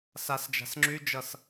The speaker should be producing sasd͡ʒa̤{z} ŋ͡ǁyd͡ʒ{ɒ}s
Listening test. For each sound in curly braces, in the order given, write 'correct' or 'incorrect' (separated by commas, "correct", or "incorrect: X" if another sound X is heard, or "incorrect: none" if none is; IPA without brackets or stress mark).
incorrect: s, incorrect: ʌ